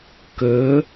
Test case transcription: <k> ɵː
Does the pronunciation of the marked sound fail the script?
no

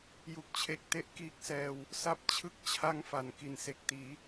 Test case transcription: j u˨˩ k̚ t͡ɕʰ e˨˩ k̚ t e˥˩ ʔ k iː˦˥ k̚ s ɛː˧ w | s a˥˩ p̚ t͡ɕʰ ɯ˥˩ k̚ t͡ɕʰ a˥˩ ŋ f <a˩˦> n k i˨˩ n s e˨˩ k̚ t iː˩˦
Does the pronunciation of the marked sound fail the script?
yes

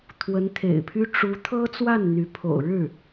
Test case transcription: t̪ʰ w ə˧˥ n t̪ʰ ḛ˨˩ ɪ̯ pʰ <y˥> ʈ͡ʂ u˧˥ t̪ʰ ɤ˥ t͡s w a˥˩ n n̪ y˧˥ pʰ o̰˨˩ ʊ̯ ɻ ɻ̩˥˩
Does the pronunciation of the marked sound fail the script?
no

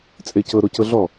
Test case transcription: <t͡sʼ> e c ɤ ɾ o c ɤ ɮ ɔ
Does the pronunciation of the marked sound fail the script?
no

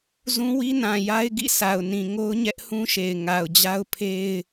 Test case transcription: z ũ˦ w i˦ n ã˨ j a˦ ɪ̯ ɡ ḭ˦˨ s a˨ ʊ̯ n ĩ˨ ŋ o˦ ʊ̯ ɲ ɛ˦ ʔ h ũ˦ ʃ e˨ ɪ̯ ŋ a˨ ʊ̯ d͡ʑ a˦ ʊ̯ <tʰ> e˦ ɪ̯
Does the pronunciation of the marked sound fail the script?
yes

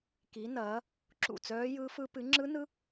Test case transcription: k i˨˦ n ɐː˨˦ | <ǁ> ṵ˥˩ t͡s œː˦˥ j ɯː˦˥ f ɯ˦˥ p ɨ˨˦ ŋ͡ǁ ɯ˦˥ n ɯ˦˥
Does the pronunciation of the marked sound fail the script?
no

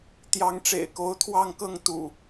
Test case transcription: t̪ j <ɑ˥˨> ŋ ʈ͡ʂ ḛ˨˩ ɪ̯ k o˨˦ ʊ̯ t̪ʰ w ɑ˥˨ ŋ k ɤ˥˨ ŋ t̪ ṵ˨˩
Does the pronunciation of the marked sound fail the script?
yes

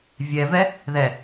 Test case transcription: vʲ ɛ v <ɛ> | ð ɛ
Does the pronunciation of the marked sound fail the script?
no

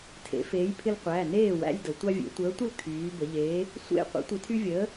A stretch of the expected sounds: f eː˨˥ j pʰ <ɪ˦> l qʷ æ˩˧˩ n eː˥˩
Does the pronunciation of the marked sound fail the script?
no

